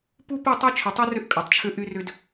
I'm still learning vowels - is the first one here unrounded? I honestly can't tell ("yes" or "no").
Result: no